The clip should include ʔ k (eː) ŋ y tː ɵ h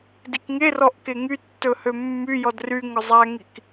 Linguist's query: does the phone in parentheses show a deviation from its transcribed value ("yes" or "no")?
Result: yes